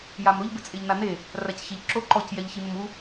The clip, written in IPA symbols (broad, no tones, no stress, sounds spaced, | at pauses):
j a m ɾ ʊ ʎ b ɪ t͡sʼ e ʎ n a n e | r a c ç e ʎ ǁ o ǃ ɔ c j ɛ ʎ ç i m ʊ m u